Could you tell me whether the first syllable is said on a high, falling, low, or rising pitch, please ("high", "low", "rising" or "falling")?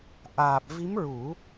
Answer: low